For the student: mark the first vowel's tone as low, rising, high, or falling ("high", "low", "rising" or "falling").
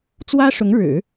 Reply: high